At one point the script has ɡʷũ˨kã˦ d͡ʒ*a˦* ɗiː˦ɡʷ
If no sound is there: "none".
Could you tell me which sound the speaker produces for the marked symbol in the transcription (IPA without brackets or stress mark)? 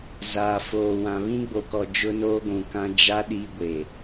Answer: a˦